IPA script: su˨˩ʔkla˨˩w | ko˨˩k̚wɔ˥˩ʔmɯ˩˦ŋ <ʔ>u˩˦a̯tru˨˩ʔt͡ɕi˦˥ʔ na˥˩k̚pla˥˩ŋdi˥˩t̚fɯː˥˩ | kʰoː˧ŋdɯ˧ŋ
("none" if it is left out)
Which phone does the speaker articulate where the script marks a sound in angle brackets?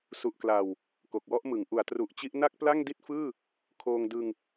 ʔ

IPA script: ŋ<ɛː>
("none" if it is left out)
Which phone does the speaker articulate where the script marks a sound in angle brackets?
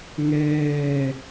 ɛː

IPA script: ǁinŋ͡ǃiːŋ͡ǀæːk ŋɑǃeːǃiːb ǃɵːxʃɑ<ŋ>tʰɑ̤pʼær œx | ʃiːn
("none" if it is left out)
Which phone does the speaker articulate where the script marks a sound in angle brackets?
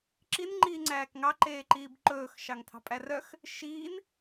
ŋ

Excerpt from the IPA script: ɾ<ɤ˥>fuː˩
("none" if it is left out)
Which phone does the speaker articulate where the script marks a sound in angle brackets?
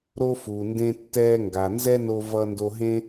o˥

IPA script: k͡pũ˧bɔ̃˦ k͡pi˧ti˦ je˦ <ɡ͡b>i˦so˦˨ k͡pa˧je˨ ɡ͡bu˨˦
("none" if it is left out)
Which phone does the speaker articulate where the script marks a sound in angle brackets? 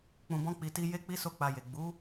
k͡p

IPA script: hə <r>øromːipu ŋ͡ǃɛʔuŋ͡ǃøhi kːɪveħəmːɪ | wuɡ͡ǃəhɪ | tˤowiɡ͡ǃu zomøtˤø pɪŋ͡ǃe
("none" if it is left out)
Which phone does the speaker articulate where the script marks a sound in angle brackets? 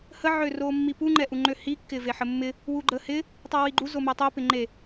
ʕ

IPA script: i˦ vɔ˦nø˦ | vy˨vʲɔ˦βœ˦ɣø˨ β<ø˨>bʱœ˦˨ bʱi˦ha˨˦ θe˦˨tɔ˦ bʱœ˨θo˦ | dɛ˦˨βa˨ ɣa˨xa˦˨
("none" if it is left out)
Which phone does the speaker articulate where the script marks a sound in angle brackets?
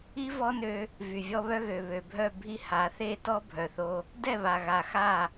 ø˨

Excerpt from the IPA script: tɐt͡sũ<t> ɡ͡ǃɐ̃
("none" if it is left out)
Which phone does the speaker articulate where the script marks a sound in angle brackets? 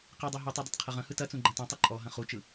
none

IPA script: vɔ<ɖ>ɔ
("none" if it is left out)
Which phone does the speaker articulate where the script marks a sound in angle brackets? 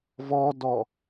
d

